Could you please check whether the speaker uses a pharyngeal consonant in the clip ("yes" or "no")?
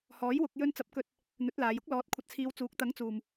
no